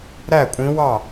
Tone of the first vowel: falling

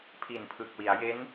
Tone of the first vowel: low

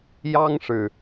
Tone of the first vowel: high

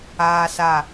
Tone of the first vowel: high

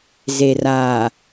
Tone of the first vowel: low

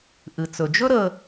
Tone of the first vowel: low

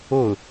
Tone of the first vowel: falling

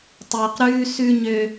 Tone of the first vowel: low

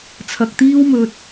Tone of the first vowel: low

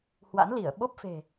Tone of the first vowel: rising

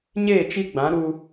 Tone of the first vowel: falling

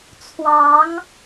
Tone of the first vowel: rising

